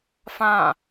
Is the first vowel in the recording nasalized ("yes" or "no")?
yes